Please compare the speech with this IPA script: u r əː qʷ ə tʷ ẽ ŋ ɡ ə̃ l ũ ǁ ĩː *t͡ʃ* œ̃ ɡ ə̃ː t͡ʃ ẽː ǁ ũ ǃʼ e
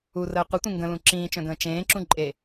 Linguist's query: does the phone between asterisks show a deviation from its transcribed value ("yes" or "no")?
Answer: no